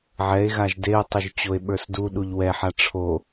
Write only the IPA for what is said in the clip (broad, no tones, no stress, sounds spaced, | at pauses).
ʕ ɛ e̯ ɣ a ʒ d e o̯ tˤ ʏ ʒ t͡ɕ o e̯ ɓ ə˞ s d u ɗ u ʎ w ɛ ħ a ʈ͡ʂʰ o